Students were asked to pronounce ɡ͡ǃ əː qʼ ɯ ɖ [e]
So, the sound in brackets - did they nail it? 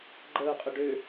no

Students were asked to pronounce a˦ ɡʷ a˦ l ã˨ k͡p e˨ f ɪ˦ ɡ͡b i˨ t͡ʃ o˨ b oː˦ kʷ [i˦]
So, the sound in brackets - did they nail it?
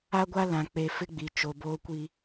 yes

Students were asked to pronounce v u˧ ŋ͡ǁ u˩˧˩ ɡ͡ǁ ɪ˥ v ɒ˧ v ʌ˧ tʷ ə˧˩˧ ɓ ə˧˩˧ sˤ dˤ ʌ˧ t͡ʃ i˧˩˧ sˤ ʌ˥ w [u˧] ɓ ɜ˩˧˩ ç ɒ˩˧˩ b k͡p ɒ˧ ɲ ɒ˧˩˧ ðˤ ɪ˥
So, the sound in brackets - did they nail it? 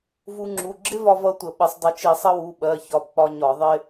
no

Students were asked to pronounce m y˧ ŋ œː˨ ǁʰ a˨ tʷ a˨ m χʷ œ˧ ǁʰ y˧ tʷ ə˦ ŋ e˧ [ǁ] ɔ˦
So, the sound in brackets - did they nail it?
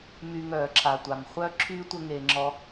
no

